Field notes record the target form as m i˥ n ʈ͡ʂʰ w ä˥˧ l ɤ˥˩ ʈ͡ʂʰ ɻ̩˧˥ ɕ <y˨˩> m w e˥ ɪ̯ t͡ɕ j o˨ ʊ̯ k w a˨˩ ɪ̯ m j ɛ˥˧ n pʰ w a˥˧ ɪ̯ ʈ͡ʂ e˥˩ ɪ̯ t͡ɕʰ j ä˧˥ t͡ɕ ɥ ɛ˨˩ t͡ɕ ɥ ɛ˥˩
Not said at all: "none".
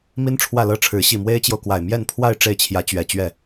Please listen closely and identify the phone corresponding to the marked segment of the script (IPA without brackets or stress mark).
i˨˩